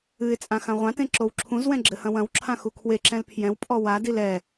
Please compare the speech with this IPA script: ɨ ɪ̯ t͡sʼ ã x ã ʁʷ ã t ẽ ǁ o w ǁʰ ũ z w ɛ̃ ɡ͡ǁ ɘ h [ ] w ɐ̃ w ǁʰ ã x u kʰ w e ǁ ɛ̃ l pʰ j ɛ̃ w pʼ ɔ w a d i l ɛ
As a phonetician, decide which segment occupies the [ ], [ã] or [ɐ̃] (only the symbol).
ɐ̃